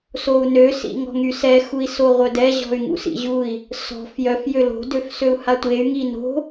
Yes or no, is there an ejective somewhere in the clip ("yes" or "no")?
no